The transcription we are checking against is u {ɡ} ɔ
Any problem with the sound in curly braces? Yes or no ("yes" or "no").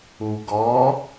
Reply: no